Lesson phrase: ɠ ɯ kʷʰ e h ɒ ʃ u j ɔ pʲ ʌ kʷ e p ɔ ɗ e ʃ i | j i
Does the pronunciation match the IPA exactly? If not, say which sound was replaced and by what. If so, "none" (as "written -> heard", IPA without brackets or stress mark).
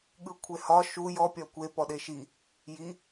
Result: ʌ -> ɒ